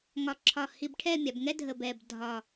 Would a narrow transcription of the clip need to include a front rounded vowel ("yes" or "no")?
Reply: no